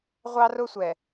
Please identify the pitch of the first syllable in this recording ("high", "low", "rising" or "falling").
high